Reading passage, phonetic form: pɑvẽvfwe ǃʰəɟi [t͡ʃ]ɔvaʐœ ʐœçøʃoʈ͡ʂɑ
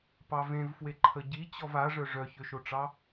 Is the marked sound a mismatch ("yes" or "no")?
yes